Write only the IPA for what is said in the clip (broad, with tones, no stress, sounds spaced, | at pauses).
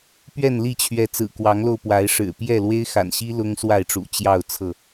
p ɥ ɛ˥˨ n l i˥˨ t͡ɕʰ ɥ ɛ˨˦ t͡s ɹ̩˨˩ k w ɑ˨˦ ŋ l o˧ ʊ̯ p w a˨˦ ɪ̯ ʂ ɻ̩˨˩ p j ɛ˥˨ l w e˦ ɪ̯ x a̰˨˩ n ɕ i˦ l ʊ˦ ŋ s w a˥˨ ɪ̯ ʈ͡ʂ ṵ˨˩ t͡ɕ j ɑ˥˨ ʊ̯ t͡sʰ ɤ˥˨